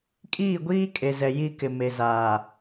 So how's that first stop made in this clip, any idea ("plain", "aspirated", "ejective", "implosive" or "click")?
ejective